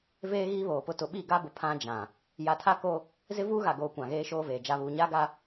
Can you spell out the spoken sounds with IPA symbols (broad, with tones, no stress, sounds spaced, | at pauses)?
v eː˦ ɣ iː˦ β oː˨ p ʊ˦ t ʊ˨ ɓ i˦˨ ɡ a˦ b ʊ˨ pʰ ã˦ d͡ʒ ã˨ | j a˨ tʰ a˦ k o˦ | z ɪ˦ v uː˦ ɣ a˨ ɡ oː˨ kʷ ã˨ ɣ eː˦ ʃ oː˦ v eː˨ d͡ʒ a˨ β uː˨ ɲ aː˦ ɡ a˦